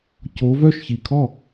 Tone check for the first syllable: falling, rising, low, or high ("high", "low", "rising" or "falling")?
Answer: rising